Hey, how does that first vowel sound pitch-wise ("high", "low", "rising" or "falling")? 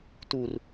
low